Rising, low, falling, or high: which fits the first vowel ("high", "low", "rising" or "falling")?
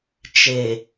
low